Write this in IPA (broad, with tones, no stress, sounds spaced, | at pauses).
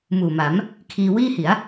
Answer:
m uː˨˩ m a˩˦ m | kʰ iː˧ w iː˥˩ h i˩˦ a̯